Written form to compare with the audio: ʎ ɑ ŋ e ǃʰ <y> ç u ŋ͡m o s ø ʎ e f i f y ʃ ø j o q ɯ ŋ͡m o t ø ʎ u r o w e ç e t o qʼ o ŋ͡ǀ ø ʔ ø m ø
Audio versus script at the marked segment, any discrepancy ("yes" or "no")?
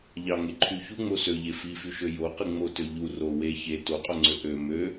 no